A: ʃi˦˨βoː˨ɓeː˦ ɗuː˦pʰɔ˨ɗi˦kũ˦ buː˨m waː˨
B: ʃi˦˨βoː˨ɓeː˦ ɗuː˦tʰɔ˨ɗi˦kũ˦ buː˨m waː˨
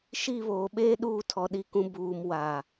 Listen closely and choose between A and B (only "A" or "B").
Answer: B